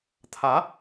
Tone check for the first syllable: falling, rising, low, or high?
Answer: rising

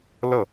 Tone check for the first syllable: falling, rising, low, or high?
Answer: falling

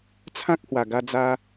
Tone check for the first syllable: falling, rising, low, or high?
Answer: high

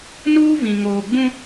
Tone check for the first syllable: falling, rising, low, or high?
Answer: high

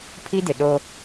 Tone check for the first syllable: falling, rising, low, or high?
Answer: high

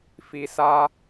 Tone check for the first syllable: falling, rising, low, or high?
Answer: low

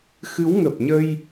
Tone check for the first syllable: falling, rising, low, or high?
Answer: rising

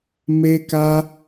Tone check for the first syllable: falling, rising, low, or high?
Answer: high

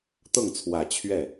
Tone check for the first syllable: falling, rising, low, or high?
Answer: falling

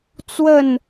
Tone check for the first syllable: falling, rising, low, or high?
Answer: falling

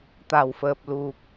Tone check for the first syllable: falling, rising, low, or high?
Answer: low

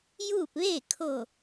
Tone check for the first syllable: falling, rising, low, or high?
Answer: falling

